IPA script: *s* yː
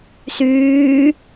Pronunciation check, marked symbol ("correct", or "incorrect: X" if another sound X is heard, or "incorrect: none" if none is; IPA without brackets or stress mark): correct